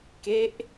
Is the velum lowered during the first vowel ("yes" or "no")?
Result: no